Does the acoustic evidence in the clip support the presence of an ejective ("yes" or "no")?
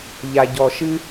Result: no